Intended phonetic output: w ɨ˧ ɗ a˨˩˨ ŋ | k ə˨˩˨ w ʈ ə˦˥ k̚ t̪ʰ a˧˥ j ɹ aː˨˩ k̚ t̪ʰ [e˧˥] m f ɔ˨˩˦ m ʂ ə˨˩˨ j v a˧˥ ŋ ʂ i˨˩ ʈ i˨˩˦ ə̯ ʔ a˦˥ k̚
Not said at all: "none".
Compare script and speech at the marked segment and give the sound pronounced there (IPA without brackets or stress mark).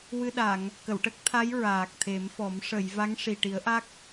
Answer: e˨˩˦